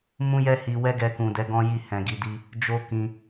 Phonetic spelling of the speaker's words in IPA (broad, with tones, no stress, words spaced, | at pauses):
mũ˦jɛ˦hi˧ wɛ˦ɡɛ˧kũ˨dɛ˨˦ ɡɔ̃˦ji˦˨hɛ̃˨ɡi˧ di˧ | d͡ʒo˦kĩ˧